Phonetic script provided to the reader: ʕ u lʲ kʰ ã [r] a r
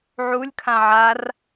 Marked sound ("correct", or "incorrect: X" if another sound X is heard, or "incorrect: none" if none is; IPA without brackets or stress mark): incorrect: ʕ